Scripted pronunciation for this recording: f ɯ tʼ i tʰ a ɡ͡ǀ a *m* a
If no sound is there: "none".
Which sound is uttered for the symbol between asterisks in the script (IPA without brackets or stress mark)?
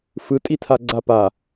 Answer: p